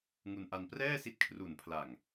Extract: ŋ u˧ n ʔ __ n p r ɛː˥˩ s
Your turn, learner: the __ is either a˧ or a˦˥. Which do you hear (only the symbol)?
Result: a˧